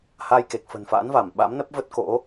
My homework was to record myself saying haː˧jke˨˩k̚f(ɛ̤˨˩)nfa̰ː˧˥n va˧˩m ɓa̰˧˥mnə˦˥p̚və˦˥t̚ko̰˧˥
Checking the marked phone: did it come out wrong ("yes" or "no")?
yes